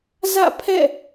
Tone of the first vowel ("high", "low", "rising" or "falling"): falling